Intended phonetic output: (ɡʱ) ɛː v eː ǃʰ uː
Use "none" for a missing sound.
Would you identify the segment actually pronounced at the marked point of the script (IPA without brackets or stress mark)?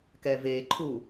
k